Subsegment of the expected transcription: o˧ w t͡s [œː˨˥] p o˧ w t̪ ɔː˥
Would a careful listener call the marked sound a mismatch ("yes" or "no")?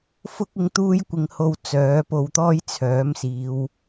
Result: no